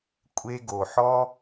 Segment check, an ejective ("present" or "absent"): present